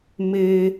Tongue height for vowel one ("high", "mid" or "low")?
mid